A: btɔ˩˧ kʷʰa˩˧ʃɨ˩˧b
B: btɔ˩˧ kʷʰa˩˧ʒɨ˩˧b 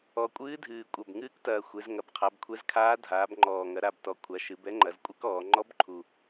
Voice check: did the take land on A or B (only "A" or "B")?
A